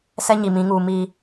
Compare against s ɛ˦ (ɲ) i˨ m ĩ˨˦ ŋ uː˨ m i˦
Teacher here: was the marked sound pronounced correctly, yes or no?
yes